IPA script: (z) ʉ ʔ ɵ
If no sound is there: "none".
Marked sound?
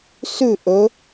s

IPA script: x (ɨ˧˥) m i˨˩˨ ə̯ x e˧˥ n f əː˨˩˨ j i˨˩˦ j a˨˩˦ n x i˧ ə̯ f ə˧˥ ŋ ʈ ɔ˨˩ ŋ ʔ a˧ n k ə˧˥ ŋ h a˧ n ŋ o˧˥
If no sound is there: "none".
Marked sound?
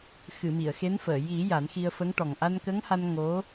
ɨ˨˩˨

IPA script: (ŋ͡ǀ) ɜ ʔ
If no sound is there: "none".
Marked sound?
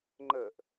ŋ͡ǃ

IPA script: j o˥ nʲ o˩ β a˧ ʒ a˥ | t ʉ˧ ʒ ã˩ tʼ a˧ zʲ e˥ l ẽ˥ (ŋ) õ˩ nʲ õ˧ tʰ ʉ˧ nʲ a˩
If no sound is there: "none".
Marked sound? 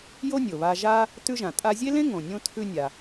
ŋ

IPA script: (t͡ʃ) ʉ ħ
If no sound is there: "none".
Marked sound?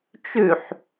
t͡ʃ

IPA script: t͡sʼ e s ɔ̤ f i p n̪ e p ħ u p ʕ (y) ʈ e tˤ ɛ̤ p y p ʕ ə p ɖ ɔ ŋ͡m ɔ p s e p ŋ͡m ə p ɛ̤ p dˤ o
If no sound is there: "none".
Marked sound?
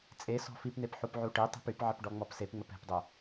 u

